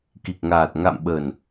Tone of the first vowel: low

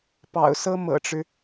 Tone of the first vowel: low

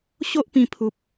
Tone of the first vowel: high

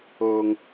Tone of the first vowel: high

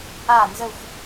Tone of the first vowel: falling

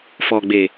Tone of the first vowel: low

